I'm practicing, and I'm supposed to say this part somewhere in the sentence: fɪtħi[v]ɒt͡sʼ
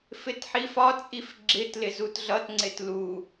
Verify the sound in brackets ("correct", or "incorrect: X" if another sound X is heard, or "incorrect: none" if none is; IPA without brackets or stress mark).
incorrect: f